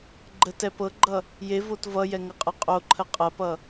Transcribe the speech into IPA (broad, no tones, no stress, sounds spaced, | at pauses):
ɡ͡ǃ ə t ɛ p ɤ ɡ͡ǃ ʌ | j e v o t v ʌ j ɛ ŋ ʌ qʼ ʌ qʼ o ǃʰ ə qʼ ɐ p ʌ